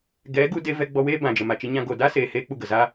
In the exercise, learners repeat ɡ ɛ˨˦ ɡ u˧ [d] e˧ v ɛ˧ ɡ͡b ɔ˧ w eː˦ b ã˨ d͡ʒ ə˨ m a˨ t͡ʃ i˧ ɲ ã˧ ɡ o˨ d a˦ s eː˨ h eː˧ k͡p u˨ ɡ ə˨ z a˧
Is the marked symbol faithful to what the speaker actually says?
yes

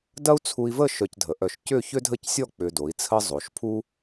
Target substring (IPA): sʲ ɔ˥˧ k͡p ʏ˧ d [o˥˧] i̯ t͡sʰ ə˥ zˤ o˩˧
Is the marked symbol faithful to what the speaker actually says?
no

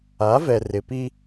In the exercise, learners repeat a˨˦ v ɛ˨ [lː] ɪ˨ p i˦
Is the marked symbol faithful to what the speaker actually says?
no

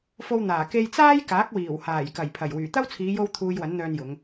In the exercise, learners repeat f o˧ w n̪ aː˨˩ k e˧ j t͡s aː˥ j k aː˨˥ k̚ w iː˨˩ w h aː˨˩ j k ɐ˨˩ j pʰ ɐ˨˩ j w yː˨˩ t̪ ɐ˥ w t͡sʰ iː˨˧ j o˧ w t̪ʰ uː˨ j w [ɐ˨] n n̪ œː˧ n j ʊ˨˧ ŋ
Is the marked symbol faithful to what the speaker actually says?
no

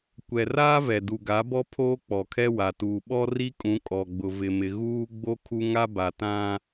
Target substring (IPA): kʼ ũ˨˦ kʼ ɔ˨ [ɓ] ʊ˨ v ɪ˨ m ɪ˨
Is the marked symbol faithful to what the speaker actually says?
no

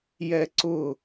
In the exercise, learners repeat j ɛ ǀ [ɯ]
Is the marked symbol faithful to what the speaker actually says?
no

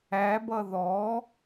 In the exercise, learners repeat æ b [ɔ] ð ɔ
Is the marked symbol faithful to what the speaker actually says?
no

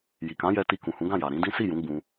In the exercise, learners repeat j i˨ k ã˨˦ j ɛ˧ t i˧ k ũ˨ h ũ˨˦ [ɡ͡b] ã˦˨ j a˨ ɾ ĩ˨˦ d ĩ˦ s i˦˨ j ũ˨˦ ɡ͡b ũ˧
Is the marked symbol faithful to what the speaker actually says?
no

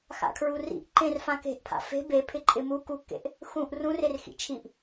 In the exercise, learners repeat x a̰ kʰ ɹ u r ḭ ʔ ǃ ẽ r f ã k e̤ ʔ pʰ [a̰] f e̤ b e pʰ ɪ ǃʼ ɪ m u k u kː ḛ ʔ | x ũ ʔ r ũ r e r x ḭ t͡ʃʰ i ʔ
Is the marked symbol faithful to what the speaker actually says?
yes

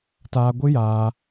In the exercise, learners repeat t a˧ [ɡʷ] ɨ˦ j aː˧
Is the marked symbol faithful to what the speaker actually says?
yes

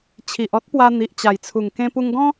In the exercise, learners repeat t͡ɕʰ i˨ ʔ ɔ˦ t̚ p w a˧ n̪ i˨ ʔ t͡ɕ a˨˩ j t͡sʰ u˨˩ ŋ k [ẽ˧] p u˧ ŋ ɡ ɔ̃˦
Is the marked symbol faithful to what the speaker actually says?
yes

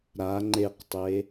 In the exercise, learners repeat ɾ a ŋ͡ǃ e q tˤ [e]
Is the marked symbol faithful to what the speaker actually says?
yes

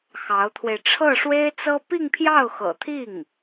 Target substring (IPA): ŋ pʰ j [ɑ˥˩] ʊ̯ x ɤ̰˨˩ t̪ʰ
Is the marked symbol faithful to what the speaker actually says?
yes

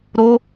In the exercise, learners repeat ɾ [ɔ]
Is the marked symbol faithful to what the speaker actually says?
no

